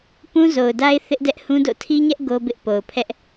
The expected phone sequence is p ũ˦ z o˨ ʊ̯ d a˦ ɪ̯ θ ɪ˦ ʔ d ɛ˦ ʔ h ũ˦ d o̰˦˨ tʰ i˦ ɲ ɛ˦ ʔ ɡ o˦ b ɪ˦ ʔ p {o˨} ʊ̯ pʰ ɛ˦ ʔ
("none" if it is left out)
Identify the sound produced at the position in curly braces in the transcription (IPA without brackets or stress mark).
o˨